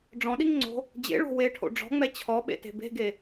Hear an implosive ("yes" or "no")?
yes